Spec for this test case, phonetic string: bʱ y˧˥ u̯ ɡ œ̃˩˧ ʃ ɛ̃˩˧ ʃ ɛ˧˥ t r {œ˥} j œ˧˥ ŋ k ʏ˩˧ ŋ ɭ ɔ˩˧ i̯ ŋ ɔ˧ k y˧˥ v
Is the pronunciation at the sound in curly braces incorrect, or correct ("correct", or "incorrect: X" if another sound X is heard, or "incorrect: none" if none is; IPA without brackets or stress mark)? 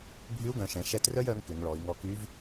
correct